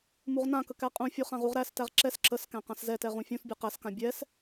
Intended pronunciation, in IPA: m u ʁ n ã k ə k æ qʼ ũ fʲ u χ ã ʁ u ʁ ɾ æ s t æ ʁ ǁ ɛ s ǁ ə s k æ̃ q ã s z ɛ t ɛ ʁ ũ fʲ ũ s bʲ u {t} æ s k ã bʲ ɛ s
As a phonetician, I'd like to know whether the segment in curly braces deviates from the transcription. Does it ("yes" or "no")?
yes